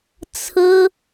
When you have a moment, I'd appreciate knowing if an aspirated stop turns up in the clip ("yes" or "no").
yes